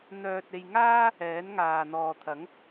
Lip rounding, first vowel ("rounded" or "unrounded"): rounded